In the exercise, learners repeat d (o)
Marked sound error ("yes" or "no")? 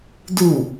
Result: yes